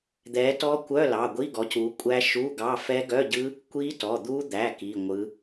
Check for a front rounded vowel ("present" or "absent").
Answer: present